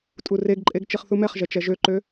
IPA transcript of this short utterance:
tʼureɡǃʼeɡ t͡ʃiχθumɛχʒɛ t͡ʃɛʒøǃø

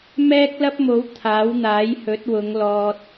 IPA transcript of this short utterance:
mɛː˥k̚lɐ˥p̚mo˨˥w t̪ʰaː˨˥wn̪aː˨˥jhɵ˨˥t̚wʊ˨˧ŋ lɔː˨t̚

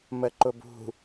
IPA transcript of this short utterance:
məǃʊbṳ

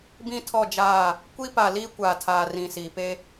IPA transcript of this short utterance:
bĩ˦tʰɔ˦˨d͡ʒaː˦˨ | kʷi˦pa˨liː˦ kʷaː˨tʰaː˨rĩ˨siː˨ pe˦

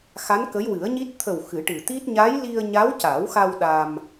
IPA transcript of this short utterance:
xa˧˥nkə˧˥jwɨ˨˩˦ə̯ɲi˦˥t̚ t̪ʰə˨˩w xɨ˨˩˦ʈɨ˨˩t̪i˦˥t̚ ɲa˧˥jli˧ə̯ ɲa˧˥wca˨˩˦wxa˧w ɗa˧m

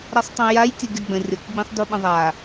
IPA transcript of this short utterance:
ɾasˤtˤĩjaj tʲəɡʲʌɡ͡bə̃ rʲʌkɡ͡bĩsˤduɓə̃ ðˤa

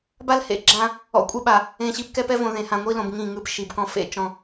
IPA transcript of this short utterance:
ba˦lhḛ˨ɡ͡ǁã˦ | ɔ̰˨kʷʼe˦ɓa˨ | ẽ˨ɕi˨p kɛ˦pɛ˦ võ˨ðẽ˨hã˨ ŋʷi˦lõ˨b ŋĩ˦˨ŋɯ˦p ʃi˨bkɔ̃˦ fḛ˦t͡ʃɔ̃˦

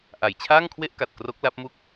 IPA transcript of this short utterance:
ʔa˨˩jt͡ɕʰaː˥˩ŋkʰwe˥˩ʔka˨˩t̚ kro˦˥k̚la˦˥p̚mu˥˩k̚

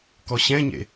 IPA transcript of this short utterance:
kɔɕɛ̃ɲḛ

